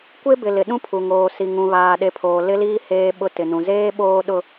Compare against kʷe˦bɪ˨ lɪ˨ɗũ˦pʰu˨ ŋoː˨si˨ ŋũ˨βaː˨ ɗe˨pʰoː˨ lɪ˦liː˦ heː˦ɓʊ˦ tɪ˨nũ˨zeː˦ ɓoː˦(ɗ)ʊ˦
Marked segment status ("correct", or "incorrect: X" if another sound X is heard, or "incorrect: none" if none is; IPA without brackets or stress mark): correct